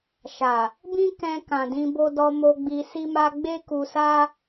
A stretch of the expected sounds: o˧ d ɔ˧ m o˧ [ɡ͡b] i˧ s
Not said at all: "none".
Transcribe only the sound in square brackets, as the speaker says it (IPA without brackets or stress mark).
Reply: ɡ͡b